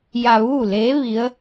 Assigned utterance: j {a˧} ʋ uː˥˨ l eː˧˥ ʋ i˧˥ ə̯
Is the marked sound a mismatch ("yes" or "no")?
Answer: no